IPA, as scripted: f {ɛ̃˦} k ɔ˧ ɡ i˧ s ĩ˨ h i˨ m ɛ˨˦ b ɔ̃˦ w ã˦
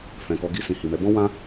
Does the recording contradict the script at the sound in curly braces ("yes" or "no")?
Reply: yes